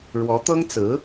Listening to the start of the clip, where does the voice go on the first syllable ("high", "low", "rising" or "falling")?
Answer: rising